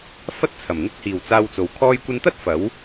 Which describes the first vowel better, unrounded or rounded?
unrounded